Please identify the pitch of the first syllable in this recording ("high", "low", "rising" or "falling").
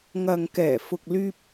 low